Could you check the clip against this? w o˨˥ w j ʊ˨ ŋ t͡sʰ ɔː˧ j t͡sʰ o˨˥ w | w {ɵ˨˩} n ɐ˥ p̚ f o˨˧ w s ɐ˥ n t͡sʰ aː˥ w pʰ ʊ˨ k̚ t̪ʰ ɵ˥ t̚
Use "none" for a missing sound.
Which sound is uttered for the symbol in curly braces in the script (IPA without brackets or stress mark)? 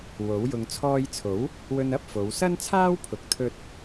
ɵ˧